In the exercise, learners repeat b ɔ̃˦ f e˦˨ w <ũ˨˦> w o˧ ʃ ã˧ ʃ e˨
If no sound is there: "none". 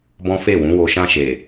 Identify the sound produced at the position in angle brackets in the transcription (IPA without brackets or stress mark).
ũ˨˦